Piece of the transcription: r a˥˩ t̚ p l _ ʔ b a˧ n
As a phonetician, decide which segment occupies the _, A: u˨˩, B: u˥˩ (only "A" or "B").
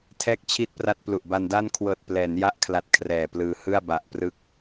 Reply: A